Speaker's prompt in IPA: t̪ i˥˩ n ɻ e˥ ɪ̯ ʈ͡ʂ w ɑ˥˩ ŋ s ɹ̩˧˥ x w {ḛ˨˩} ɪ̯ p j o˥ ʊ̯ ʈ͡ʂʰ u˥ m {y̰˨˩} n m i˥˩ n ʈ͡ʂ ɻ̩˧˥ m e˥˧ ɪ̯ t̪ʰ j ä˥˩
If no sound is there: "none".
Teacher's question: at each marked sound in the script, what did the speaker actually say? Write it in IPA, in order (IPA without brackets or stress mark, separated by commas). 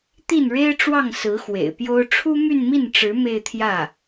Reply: ḛ˨˩, y˥˧